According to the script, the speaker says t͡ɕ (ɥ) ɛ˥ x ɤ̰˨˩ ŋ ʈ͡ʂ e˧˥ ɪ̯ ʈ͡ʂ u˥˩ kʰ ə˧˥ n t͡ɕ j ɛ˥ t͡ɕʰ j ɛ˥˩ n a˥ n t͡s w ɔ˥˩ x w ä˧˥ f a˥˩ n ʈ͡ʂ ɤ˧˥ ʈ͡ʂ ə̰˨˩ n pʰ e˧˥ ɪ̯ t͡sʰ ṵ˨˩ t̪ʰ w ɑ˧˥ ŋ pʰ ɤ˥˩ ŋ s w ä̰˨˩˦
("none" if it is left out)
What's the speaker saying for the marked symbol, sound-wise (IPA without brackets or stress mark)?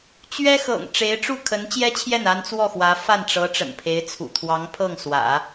ɥ